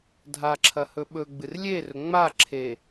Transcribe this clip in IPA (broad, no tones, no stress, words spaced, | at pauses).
dʱaǁʰɐ hɵɓɵɡ͡bɨr lʲerɵ ŋ͡ma ǁʰe